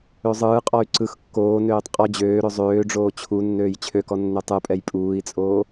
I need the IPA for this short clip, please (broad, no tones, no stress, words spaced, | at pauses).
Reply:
øzˤɯːqʼɔy̯ ǀɯx kːoːnøːtˤ qʼɔ d͡ʑøːɾø zˤøːɖ͡ʐoː t͡ɕʰu nːøːjt͡ɕʰøkɔ nːøtˤɯpʼɛj pʼuːi̯t͡sʼoː